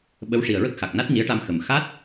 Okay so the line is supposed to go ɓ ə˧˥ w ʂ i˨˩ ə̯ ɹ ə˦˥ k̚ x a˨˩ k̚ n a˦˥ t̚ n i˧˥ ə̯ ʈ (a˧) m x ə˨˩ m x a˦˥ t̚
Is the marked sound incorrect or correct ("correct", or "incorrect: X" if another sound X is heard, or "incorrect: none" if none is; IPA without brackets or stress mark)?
correct